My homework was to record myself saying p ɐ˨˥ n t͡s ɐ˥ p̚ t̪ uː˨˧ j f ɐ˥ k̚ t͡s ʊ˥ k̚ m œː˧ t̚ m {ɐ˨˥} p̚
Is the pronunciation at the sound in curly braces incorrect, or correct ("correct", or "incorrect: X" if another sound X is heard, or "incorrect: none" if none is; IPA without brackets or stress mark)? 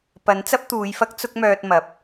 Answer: correct